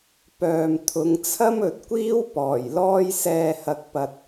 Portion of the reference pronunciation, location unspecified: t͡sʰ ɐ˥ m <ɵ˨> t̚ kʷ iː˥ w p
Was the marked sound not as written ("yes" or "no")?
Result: no